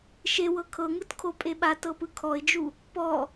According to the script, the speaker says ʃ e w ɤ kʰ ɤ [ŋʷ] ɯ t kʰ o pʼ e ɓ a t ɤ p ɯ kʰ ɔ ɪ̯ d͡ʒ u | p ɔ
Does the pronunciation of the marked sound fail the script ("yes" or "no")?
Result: yes